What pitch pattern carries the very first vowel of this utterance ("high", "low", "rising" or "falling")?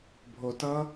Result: low